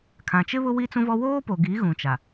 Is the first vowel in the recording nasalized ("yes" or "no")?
yes